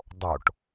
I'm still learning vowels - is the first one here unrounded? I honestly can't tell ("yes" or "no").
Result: no